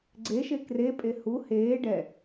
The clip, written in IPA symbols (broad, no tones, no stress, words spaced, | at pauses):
ɡ͡ǀeʃe krepʼe hu heː ɖɛ